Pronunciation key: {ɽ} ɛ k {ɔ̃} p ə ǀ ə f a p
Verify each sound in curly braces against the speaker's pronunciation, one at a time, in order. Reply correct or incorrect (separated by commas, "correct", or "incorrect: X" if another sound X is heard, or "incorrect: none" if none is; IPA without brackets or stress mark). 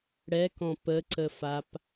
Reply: correct, correct